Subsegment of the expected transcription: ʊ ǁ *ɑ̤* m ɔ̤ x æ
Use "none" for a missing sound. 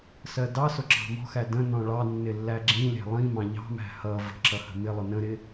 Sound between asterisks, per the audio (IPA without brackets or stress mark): ɑ̤